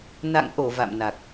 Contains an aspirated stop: no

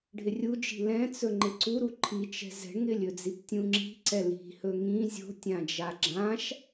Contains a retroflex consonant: yes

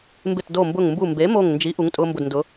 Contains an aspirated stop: no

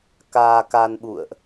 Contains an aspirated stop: no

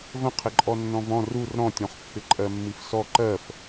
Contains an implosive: no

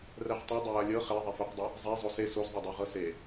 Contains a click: no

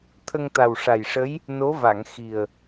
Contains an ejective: no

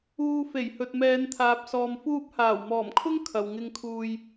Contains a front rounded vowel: no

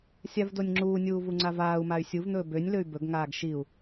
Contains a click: yes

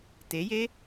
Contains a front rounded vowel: no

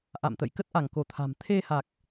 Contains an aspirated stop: yes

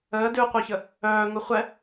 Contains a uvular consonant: yes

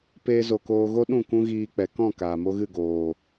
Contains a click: no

